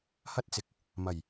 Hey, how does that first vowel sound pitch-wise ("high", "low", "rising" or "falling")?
high